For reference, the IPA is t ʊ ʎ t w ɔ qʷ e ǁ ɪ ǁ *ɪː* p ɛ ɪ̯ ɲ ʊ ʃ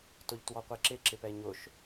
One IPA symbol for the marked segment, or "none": ɪ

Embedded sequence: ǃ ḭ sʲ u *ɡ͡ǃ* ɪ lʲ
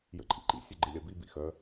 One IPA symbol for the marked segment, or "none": ɡ͡ǃ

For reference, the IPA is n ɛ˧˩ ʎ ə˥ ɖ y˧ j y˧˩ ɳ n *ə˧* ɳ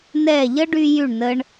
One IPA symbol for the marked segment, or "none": ə˧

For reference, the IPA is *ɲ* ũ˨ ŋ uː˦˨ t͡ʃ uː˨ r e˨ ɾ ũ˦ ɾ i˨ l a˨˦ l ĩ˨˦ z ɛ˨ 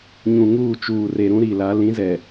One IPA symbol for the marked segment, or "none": ɲ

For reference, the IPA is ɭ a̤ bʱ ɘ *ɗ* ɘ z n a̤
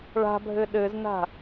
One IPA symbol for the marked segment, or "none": ɗ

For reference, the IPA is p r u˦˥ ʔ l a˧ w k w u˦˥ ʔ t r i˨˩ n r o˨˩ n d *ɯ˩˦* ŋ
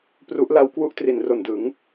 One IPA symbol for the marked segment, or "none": ɯ˩˦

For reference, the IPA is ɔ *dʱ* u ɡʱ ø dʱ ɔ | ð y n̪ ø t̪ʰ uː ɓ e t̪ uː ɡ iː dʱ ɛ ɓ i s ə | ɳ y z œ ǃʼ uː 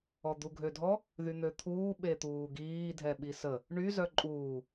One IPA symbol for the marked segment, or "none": d̪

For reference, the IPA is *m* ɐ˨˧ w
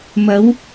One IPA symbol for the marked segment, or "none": m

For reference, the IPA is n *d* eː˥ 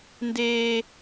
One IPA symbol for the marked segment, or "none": d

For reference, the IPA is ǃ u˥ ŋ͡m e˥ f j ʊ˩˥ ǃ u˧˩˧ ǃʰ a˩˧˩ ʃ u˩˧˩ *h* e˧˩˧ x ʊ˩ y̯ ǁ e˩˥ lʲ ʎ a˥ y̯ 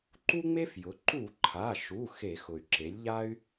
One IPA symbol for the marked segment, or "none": x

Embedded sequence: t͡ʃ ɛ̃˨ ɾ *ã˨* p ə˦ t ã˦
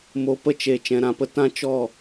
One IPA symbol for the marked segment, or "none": ã˨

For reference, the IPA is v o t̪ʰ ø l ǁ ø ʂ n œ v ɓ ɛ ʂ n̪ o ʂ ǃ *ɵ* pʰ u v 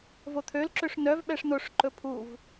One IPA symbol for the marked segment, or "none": ɵ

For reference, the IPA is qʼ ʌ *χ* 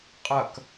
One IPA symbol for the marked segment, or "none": k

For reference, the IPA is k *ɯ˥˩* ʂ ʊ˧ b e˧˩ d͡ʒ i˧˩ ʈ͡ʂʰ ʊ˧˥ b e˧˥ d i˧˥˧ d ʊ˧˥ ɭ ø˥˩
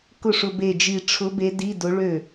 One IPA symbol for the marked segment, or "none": ʊ˥˩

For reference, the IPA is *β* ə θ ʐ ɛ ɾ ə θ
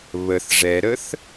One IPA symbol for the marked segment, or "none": β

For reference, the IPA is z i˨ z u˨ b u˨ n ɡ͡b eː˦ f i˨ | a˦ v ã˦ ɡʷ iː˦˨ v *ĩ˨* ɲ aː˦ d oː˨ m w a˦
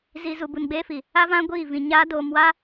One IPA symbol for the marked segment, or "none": ĩ˨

